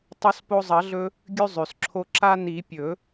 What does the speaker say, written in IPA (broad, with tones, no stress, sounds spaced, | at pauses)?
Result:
tˤ o˧ s p o˧ zˤ ɐ˨˩˦ ɮ ɵ˧ | ɡʲ ʉ˧ zˤ ʉ˩ s ǁʰ o˧ ǁ a˧ n i˨˩˦ pʲ ɵ˨˩˦